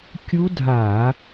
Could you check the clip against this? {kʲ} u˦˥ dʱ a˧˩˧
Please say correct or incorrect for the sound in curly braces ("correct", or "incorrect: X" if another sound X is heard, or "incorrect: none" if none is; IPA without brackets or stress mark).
correct